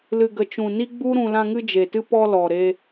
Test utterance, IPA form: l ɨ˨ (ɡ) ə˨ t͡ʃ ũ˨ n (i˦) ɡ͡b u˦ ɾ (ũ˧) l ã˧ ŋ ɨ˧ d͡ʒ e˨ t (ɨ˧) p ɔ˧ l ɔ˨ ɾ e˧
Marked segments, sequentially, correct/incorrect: correct, correct, correct, correct

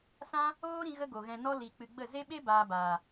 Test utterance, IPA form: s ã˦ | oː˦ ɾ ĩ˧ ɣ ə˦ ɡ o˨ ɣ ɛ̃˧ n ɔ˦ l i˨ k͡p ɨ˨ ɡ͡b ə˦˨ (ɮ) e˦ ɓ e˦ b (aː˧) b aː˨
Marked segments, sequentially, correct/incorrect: incorrect: z, correct

